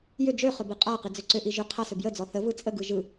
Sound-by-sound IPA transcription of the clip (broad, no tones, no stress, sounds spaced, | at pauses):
j ʏ d͡ʒ ø χ ʏ b i qʼ a q i d͡z ø ǀ ʏ ʔ i ʒ ʏ qʰ a s ʏ b j ə d͡z ɔ θ ə v ɯ t͡sʼ ə ɡ ɯ ʒ ɯ